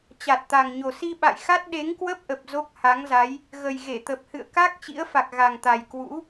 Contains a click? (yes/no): no